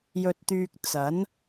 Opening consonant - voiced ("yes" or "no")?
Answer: yes